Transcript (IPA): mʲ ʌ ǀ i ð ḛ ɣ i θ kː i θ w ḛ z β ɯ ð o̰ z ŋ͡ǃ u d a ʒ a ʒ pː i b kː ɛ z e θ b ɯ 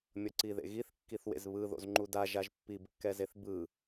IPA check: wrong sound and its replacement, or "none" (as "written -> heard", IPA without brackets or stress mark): none